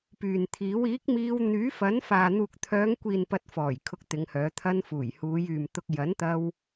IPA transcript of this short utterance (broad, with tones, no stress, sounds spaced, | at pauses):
p yː˨ n t̪ʰ iː˨˥ w iː˨˥ k̚ m iː˧ w n̪ yː˨˥ f ɐ˨˥ n f aː˨ n̪ uː˨ k̚ t̪ʰ œː˨˧ ŋ kʷ iː˨ n p ɐ˧ t̚ f ɔː˨˩ j kʰ ʊ˧ k̚ t̪ ɪ˨˧ ŋ h œː˨˧ t̪ʰ ɐ˧ n f uː˨˩ j h uː˨˧ j yː˨ m t̪ ʊ˧ k̚ j ɐ˨˥ n t̪ ɐ˧ w